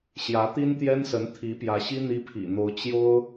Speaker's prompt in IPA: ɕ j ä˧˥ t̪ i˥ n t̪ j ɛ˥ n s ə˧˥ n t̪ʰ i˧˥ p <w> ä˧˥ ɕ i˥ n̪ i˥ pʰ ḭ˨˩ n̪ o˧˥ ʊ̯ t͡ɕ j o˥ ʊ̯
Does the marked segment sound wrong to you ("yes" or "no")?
yes